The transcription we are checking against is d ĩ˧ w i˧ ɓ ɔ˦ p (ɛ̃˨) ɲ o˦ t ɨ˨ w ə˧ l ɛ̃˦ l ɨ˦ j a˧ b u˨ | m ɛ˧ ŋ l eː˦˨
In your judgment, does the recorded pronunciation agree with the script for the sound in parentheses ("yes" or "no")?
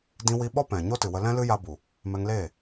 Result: yes